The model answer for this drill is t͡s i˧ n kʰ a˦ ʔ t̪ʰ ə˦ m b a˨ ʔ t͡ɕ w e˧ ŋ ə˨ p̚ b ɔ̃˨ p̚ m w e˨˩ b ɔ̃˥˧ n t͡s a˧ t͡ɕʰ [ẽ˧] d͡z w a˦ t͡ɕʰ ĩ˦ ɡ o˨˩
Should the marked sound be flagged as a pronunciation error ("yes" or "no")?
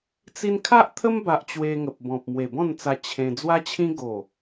no